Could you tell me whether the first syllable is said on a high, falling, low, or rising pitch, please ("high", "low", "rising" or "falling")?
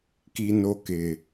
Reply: high